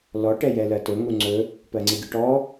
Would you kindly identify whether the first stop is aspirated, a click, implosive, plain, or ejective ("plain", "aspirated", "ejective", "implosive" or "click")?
plain